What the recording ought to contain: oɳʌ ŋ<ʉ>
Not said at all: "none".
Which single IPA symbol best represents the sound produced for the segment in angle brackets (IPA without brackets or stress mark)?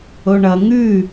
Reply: ʉ